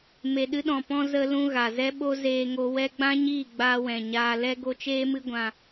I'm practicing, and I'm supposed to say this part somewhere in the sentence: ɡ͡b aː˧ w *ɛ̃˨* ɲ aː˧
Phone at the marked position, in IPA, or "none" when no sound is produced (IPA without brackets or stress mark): ɛ̃˨